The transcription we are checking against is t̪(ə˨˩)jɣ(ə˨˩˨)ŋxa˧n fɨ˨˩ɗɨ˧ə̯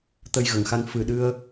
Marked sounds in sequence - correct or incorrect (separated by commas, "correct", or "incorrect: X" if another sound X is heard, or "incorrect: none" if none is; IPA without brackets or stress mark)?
incorrect: ə˧, correct